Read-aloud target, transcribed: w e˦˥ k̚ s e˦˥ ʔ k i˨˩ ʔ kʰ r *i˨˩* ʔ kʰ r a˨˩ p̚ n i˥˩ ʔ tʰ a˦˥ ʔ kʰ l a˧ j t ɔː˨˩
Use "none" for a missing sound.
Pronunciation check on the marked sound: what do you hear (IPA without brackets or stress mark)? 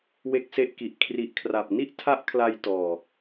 i˨˩